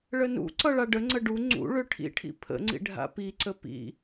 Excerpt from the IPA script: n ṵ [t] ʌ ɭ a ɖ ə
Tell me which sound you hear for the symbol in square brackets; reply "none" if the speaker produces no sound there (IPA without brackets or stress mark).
ǀ